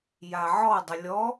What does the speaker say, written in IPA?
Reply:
j a ʕ ɔ dˤ ə lʲ ɔ

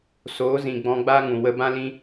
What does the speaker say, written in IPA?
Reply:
s oː˨˦ z ĩ˨ ɡ͡b ɔ̃˧ ɡ͡b aː˦ ŋ ũ˨ w ə˧ b ã˦ l ĩ˦

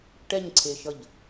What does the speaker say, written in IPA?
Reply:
ʈ ɛ ɲ ǀʰ e ʃ ʌ ʎ

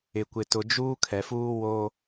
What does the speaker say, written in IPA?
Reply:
ɪ˨ kʷ ɪ˨ t ʊ˨ d͡ʒ uː˦ kʰ ɛ˨ f uː˦ w o˦

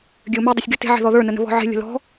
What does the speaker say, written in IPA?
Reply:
ɡʲ ø ʊ̯ m ø dˤ ə sʲ ɡʲ o t e̤ ʕ e̤ ð ɔ ð ə˞ n ə n ə̤ β ɔ̤ ʕ e̤ lʲ ə̤ l ɔ̤

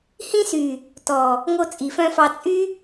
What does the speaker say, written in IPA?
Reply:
h ĩ˧ s y˨ | t ɔ˨ | ŋ o˧ t͡sʼ i˨ f œ̃˧ f ɑ˧ t͡sʼ y˦

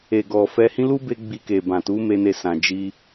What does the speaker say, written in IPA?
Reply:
e˨ ɡ ɔ˨ f ɛ˧ h ĩ˦ l u˦ b e˧ ɡ͡b i˧ k e˨ b ã˨ t u˨˦ m e˦ n e˦˨ s ã˧ d͡ʒ i˧

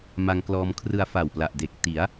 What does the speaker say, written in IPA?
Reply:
m a˧ ŋ k l ɔː˧ m kʰ r ɯ˧ a̯ f a˨˩ w p l a˨˩ ʔ d e˨˩ k̚ t i˩˦ a̯

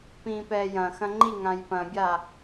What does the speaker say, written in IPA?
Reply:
p ĩː p ɛː j ɐ̃ x ɐ̃ ŋ͡ǃ i ŋ ã j p ɐ̃ bʲ a

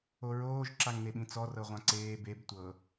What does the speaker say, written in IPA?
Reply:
o ɹ oː ʒ ǁ a ŋ n e ɓ ĩ t͡s ɔ r ɤ ʁʷ ã ǀ eː b e b tʷ ɤ

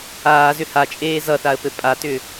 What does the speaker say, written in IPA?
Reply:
aː z ʏ h a t͡ʃʼ eː z ʌ θ a ə̯ p ɘ pʼ a t ʏ

